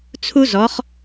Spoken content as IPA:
t͡sʰu˥ zɔ˨˥χ

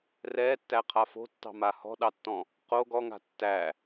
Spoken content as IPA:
rɛːtːæqʰa fo̤tːɑ̤ma hɔ̤ɗɑtːɔ̃ | qo ɡɔŋa̤ tːæ

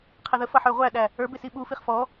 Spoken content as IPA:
qʰɛðəfʌ ħə˞ʁʷæɗæ | ə˞bɪ siɓufiχ fɔ

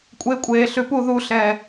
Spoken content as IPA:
kʷʼekʷʼeː ɬʉpu ðuɬɛː

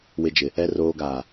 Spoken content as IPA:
wɪ˨d͡ʒɪ˨ | ɛ˨roː˨ɡaː˨

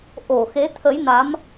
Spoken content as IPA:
ʔo˧˩xe˨˦t̪ʰə˨˦jna˨˦m

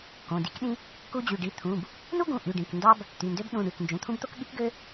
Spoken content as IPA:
kõ˩˧˩di˥kɗĩ˥ | ku˥ d͡ʑy˩˧˩ɖi˥ t̪ʰũ˩˧˩b | nu˥ɡũ˩˧˩ ʔy˩˧˩ɖĩ˩˧˩k ndɑ˥b | t̪y˩˧˩ndø˥b ɗũ˩˧˩ ɳy˩˧˩knd͡ʒũ˩˧˩t̪ʰũ˥bt̪o˥k ɠi˥kɡø˥

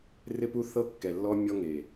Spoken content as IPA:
rɪ˦pu˦θɤ˦ kːɛ˨lːɔ˦ mʲɔ˦ŋe˨

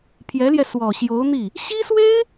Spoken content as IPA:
pʰjɛ˧˥ljɛ˧ swɔ˨˩ɕjo˧˥ʊ̯ n̪i˥˩ | ɕi˥swe˥ɪ̯

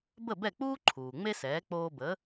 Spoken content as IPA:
bə˥˩bɛ˥˩k͡puː˥ǃʰuː˩ ŋ͡me˥sɛː˩˥ k͡poː˧bə˩˥

